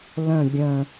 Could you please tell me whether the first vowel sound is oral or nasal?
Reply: nasal